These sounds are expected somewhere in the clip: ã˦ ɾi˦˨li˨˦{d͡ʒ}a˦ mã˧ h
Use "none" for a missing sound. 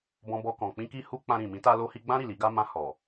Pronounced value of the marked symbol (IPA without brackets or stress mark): ɡ